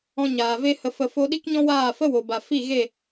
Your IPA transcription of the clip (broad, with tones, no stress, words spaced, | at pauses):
ɔ̃˧ɲaː˨ ve˧hə˨fə˨fo˧ ɗi˦kɲɔ̃˦ waː˦˨fə˦wo˨ ba˨ fi˦˨ɣe˦˨